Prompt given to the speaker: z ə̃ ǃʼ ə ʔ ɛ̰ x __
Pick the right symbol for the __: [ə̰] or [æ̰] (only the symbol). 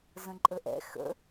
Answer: ə̰